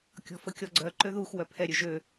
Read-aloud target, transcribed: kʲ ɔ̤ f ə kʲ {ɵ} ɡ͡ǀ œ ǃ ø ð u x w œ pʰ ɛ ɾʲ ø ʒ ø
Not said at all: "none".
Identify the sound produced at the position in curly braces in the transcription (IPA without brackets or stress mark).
ɔ